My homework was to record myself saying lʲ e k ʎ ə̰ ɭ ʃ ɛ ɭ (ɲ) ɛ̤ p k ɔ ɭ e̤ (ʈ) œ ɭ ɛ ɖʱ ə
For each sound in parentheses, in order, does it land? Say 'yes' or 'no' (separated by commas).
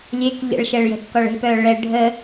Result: no, no